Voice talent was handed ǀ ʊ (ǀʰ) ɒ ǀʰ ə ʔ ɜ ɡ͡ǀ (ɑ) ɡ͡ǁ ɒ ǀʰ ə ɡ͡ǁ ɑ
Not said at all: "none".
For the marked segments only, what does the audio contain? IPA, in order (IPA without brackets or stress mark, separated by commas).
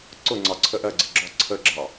ŋ͡ǀ, ə